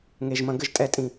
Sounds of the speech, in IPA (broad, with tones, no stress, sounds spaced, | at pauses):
ŋ e˨˩ ʒ m ɐ̃˧˩˧ ɡ ɘ˧˩˧ ʒ tʼ ɛ˨˥ tʼ ĩ˨˩